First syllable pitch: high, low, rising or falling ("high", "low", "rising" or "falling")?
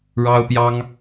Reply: high